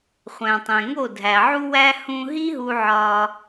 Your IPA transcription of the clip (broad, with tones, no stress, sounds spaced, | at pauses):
χʷ æ̃˩ tˤ ẽ˩ ŋ o˥˩ dʱ æ˩ ʕ u˥ w æ˥ h ũ˧ ɦ i˥ ɦ u˧ ʕ ɒ˧